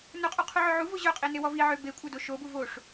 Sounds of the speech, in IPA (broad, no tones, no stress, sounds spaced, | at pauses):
n ɵ qʼ u qʰ u ʕ ɵ ʕ u v o ʑ œ qʼ i n e w ɔ v i ʕ ø b e kʷʼ œ d o ʃ o b u v o ʂ